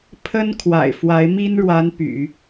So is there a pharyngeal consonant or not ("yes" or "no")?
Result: no